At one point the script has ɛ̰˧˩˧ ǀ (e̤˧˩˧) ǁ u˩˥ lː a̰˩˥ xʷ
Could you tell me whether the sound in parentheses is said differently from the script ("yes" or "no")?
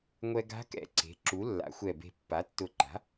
yes